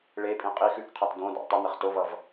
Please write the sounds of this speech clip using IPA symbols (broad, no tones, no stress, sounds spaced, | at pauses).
ɭ e pʼ ĩ qʼ i x ʉ k qʰ ɑ t d õ d ɑ̰ tˤ ə n̪ ə χ t o v ʌ v